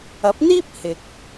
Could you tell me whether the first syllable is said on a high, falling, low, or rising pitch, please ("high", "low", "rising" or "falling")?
rising